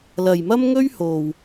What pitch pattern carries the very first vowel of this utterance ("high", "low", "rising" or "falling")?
low